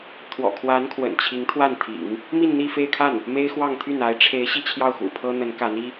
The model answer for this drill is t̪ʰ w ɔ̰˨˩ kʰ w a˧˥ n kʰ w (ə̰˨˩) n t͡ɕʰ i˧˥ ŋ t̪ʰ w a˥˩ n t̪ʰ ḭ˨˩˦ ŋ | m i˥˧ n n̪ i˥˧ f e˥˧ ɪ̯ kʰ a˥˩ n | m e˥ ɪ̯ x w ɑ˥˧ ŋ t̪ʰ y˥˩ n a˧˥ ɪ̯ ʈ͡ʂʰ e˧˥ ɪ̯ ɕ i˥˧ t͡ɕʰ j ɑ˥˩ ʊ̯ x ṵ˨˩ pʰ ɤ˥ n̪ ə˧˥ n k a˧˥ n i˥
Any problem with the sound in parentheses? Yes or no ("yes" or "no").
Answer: no